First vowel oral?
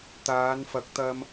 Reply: yes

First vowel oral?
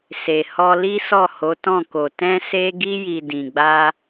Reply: yes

